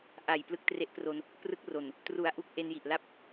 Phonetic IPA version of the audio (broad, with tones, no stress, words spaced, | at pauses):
ʔa˨˩j plɯ˦˥k̚tre˦˥ʔpro˧n | prɯ˦˥k̚ro˨˩n | tru˩˦a̯ ʔu˦˥k̚ʔe˧nji˨˩ʔla˥˩p̚